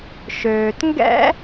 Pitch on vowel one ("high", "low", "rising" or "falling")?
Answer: low